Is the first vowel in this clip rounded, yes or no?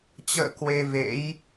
no